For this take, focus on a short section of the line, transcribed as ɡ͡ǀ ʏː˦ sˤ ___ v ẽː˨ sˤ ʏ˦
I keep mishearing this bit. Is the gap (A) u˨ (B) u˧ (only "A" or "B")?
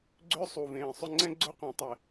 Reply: A